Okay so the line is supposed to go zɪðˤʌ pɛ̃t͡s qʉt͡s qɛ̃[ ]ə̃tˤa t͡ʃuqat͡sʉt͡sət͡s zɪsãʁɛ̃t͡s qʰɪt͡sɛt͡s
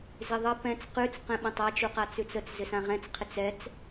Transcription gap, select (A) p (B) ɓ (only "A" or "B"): B